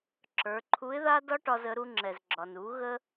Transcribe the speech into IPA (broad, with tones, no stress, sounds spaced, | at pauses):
ǁ ə˞˩˧ ǃʰ u˧˥ ɪ̯ ð a˥ d ɒ˥ ʈ ɒ˧ z ə˩˧ ɾ u˧ ŋ͡ǁ ɛ˩ z ɡ͡ǁ ɒ˩ n u˩˧ ɣ ə˥